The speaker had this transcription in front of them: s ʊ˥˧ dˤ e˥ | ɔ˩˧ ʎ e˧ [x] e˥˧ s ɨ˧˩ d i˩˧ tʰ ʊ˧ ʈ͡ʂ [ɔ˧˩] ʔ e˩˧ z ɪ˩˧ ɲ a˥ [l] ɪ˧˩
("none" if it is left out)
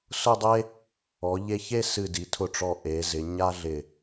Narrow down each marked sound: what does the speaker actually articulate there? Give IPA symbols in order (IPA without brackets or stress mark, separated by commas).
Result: ç, ɔ˧˩, ɮ